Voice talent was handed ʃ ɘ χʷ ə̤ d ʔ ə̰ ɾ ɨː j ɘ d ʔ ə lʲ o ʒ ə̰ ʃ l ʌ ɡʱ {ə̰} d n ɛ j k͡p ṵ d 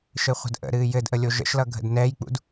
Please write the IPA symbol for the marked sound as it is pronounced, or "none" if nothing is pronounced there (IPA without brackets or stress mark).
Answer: ə̰